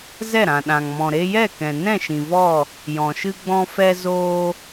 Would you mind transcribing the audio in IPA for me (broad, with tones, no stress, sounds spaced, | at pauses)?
z ɛ˦˨ ɾ ã˨ ɗ ã˨ ŋ m ɔ̃˨ ɾ e˧ j ɛ˦˨ k ɛ̃˨ n ɛ̃˦˨ ʃ ĩ˨ v ɔ˦˨ | j ɔ̃˨ ʃ ɨ˦ ɡ͡b ɔ̃˦ f ɛ˦ z oː˦